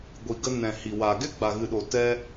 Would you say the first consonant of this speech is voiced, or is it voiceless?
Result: voiced